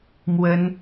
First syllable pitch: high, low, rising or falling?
high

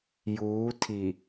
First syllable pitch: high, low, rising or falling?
rising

